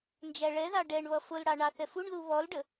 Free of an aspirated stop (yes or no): yes